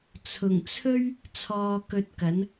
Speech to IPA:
t͡sʰ ʊ˨˩ ŋ t͡sʰ ɵ˥ ɥ | t͡sʰ ɔː˧ k ɵ˧ t̚ k ɐ˨˥ n

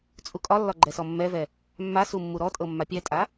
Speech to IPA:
t͡sʼ u kʼ ɒ lː ɒ ɡ͡ǃ ɛ s ɔ mː ɛ v ɛ | mː a s u mː u ɾ ɔ tʼ ɤ mː a pʲ ɛ tʼ a

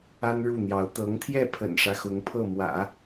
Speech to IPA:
a˥ n ɻ u˥˩ n̪ j ɑ˧˥ ʊ̯ t̪ ɤ˧˥ ŋ t̪ʰ j ɛ˥˩ pʰ ə̰˨˩ n ʂ ä˦ x ʊ˧˥ ŋ pʰ ɤ˥˩ m w ä̰˨˩˦

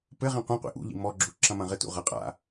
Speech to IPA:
p ɘ ʁ ĩ qʷ ĩ qʷ ḭ ʔ ṵ ʎ ḭ m ɔ ɡ͡ǁ u ǁ ɐ̃ m ɐ̃ ʁ ɘ t ṵ ʁ ɐ qʼ a̰

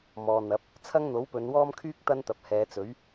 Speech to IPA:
m ɔː˨ n̪ ɐ˨˥ p̚ | t͡sʰ ɐ˥ ŋ n̪ o˨˥ w p ɵ˨˧ n w ɔː˥ m kʰ yː˥ k̚ t̪ ɐ˥ n t̪ ɐ˨ p̚ h ɛː˨˧ t͡s ɵ˨˥ ɥ

